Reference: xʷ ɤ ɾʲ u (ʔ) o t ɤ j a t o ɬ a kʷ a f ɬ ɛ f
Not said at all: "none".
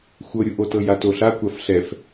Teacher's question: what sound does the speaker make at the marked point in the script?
ʔ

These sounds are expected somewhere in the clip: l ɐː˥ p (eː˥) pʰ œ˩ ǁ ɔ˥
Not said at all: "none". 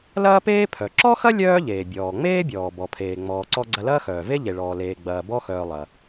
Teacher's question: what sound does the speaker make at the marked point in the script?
eː˥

